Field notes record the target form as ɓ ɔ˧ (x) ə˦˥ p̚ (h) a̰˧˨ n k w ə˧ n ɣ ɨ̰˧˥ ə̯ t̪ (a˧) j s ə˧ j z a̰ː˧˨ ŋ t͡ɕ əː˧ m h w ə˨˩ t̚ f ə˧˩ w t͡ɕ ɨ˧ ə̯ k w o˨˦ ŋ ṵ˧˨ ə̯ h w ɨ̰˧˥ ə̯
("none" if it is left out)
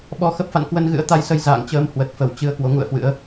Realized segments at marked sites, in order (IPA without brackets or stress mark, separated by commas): x, f, a˧